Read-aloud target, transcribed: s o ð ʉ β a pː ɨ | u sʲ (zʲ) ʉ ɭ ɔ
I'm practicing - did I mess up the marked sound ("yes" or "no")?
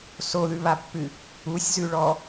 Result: yes